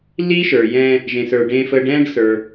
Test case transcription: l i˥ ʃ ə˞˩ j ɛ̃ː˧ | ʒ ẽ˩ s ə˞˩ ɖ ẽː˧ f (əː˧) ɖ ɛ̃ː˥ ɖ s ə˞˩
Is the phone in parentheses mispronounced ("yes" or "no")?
no